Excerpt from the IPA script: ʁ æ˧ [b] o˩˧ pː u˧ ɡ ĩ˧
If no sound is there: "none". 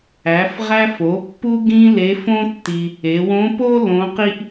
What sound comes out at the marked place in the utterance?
f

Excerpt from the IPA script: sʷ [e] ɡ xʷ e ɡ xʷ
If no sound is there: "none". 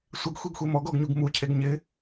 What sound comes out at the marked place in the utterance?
e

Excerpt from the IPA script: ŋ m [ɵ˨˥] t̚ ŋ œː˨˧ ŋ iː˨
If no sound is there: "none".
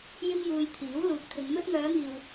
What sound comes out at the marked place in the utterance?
ɵ˧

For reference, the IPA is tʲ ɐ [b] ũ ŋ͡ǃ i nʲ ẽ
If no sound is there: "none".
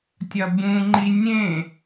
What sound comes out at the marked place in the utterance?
b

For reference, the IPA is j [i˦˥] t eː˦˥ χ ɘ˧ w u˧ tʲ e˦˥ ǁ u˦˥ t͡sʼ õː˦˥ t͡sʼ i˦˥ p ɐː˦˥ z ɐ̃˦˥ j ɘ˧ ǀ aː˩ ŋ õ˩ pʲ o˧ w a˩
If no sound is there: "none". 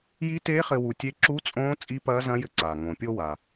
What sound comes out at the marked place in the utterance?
i˦˥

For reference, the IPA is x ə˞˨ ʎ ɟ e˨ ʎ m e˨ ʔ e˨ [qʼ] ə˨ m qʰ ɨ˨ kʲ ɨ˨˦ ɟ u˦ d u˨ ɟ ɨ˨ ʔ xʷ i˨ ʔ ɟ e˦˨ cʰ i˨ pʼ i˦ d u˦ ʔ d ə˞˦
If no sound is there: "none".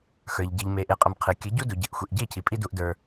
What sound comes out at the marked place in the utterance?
qʼ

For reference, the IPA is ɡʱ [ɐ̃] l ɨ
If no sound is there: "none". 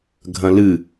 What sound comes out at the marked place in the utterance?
ɐ̃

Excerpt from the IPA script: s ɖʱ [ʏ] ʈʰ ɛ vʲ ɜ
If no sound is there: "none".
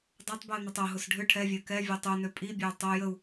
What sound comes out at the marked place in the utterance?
ʏ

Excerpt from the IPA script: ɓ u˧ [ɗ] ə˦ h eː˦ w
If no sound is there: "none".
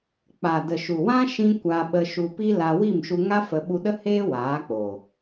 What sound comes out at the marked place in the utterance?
ɗ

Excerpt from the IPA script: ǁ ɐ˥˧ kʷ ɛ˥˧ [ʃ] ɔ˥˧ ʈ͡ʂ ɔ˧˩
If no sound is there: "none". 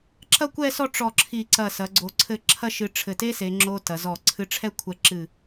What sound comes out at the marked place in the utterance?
s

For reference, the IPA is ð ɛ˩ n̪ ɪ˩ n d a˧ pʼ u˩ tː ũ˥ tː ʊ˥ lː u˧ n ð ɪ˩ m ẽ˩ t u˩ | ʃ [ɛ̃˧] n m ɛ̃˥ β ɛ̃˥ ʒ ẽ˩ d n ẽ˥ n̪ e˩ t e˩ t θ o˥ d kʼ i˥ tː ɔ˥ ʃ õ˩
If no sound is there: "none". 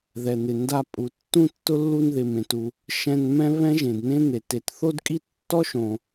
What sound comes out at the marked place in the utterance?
ɛ̃˧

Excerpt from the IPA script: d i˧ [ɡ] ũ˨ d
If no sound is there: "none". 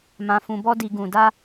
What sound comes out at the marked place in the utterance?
ɡ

